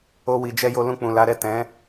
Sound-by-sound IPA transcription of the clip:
o˦ w i˧ d͡ʒ ɛ˦ j o˧ l ũ˧ k͡p ũ˨ l a˨˦ ɾ ɛ˦˨ t ɛ̃˨˦

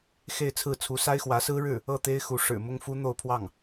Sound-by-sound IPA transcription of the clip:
x e˥˧ ɪ̯ t͡sʰ ɹ̩˥˩ t͡sʰ u˧˥ s a˥ ɪ̯ x w ä˧˥ s ɹ̩˥ ɻ ɻ̩˥˩ | ɤ˥˩ t̪ e˥ ɪ̯ x u˧˥ ʂ ɻ̩˨˩ m ʊ˥ ŋ f u˥ n̪ o˥˧ ʊ̯ pʰ w ɑ˥˩ ŋ

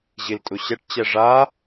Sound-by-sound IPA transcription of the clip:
ʑ i l tʼ u ɕ ɛ ʈ t͡ɕ ɛ ʐ a

